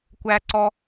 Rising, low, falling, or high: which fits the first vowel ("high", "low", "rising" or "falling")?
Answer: high